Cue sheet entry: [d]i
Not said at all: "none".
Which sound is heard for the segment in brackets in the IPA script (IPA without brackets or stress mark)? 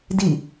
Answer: d